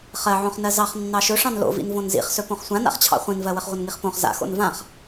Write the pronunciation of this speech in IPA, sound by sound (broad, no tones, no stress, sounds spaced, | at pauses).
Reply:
χ ɜ ʕ õ χ n ɜ z ɑ χ nː ɑ ʃ ɵ ʂ ɑ̃ n l o̰ v ḭ n v õ n z ḭ χ s ɵ p õ χ sʷ ã n a̰ χ t͡ɕʰ ɑ̰ χʷ ĩ n v ɜ w ə χ ʁʷ ə n ŋ i χ p õ χ z a̰ x o̰ n v ã χ